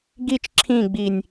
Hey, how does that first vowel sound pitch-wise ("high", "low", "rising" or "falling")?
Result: low